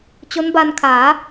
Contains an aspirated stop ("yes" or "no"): yes